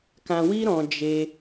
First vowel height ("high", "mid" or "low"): low